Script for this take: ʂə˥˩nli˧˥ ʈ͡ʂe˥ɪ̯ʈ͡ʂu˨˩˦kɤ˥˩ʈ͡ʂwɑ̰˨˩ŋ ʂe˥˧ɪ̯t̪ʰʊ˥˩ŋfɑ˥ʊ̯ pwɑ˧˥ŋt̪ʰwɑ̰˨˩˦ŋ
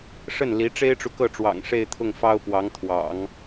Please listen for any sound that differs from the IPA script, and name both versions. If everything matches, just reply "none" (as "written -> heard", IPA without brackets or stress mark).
u˨˩˦ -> u˨